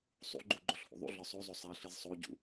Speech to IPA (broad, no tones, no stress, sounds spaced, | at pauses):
sˤ ṵ ɡ͡ǃ u ɡ͡ǃ o ɬ h ṵ ðˤ ṵ ɮ ɒ sˤ o zˤ o sˤ æ ɬ i z sˤ o ɟ ṵ